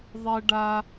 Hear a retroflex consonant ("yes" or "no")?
yes